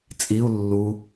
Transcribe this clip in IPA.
t͡sʼiu̯ lːu

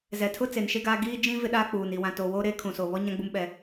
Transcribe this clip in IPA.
zɛ˨tʰʊ˦ t͡se˨nʃe˦ɡaː˦ ɡiː˦d͡ʒĩ˦ vɪ˦ɗaː˦k͡puː˨n i˨wã˨toː˨wo˦ ɾeː˦kʰũ˨soː˨βɔ˦ ɲã˦ɡ͡bu˦mɓɛ˦

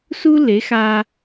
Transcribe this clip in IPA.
su˥le˩˥xaː˧

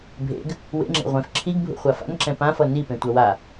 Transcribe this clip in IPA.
bʱḛɡ | wḛŋ͡ǁḛ ʁʷẽf ǁʰiɡbʱṵχʷa fa̰nǁɛ̃ pãfʌ nipẽtʷʌ wa

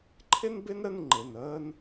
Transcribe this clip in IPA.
ǃʰɪ˥nbɪ˥nɾə˥˧n ŋ͡ǃɪ˩˧˩nəː˥n

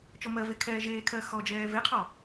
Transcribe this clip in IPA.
t͡ʃɔmɜve kʰɛːʒeːkʰɜ xɔd͡ʒɛː veqʰɔ

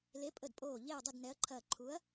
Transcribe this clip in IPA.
le˨˥pʼə˧˩dpʼoː˧˩ ʎe˥˨ɐ̯dˤə˥˨d nɛ˨˥ɐ̯ǃʰɐː˧˩ ǃʰu˨˥ɐ̯

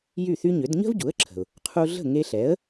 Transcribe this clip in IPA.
jy˥˩θy˥ɲʏ˩˥d ɲə̤˥vɟu˩˥ə̯ǁʰə̤˩ʊ̯ | qʰu˧ɮə̤˥˩ ŋe˧ɬɛ˩˥ə̯

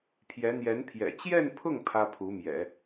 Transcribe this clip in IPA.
pʰjɛ˧˥ n̪jɛ˧˥npʰjɛ̰˨˩ t͡ɕjɛ˥˧npʰʊ˥˩ŋ pʰä˥pʰu˧˥mjɛ̰˨˩˦

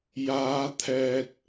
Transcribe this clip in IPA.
jaː˨˧ t̪ʰɛː˨t̚

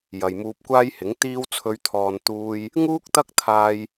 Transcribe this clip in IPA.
jɐ˨jmuː˧p̚kʷaː˥jhɪ˨˥ŋ t̪iː˧wt͡sʰɵ˨˧ɥt̪ʰɔː˨n t̪uː˧j | ŋuː˥k̚t̪ɐ˥k̚t̪ʰaː˧j

